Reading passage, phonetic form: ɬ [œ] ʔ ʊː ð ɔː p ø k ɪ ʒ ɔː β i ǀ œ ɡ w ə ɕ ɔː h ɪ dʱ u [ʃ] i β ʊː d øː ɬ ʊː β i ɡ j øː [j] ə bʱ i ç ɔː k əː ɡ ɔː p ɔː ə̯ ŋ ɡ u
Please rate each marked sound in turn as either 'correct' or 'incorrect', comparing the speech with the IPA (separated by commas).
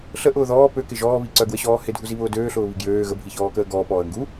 incorrect, incorrect, incorrect